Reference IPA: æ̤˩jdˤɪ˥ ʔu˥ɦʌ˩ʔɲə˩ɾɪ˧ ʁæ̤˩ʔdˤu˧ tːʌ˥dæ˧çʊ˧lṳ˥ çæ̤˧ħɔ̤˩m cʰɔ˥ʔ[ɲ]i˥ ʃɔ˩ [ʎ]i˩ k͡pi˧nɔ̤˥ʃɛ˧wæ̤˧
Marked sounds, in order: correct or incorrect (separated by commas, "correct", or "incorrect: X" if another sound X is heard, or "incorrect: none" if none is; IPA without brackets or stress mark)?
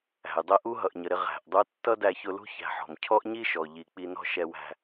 correct, correct